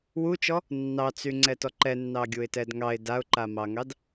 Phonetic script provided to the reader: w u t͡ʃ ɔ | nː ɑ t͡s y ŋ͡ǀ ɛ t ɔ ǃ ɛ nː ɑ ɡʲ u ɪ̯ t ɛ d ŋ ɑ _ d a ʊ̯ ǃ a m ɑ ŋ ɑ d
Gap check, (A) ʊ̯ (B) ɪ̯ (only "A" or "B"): B